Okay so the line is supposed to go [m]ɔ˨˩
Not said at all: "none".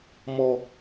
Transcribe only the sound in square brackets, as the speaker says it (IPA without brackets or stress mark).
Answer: m